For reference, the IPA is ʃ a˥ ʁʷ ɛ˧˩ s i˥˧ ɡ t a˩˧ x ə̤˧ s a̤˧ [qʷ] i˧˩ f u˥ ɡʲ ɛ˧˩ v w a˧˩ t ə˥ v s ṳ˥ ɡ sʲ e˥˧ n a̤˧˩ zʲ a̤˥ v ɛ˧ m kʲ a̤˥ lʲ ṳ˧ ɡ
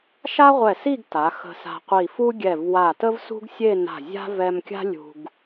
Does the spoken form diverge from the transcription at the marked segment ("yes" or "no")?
no